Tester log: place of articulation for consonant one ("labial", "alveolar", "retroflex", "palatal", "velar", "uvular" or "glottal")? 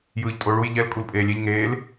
palatal